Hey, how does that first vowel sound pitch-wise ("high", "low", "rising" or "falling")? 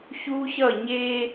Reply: high